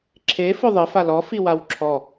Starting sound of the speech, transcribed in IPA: ǁʰ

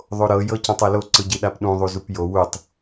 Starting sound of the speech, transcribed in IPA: ðˤ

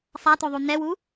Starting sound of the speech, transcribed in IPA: sˤ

